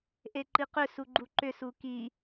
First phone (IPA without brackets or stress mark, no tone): ʔ